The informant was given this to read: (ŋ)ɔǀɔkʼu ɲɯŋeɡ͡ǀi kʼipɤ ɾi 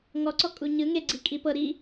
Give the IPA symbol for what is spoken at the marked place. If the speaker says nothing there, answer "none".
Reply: ŋ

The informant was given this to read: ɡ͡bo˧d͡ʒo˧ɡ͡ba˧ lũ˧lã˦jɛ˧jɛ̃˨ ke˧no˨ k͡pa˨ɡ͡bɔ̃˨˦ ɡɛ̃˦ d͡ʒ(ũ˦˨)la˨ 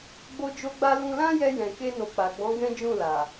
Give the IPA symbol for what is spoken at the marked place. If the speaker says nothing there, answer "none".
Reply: ũ˦˨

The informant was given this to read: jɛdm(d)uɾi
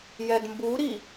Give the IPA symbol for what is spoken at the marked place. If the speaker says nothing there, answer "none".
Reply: b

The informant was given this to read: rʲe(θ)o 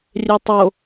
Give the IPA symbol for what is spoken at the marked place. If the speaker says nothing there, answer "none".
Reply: tˤ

